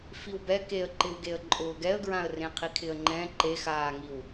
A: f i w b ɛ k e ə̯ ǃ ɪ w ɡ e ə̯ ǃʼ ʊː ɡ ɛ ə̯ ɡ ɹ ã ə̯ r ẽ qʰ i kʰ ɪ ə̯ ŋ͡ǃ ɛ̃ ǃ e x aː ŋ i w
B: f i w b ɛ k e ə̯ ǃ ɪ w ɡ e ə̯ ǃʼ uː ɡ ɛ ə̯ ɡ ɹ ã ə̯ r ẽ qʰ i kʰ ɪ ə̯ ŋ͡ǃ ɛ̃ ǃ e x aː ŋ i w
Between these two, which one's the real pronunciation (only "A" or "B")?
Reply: A